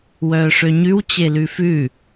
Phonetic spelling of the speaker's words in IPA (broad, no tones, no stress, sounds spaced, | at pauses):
w œː ʂ ø ɲ ʉ w t͡ɕ e l ʉ f ʉ